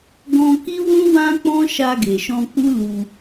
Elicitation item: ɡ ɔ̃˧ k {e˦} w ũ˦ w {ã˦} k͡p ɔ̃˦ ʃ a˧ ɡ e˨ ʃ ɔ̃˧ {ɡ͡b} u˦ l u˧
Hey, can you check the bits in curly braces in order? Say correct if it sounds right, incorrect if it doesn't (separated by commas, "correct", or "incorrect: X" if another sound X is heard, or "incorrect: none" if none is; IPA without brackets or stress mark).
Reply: incorrect: i˦, correct, incorrect: k͡p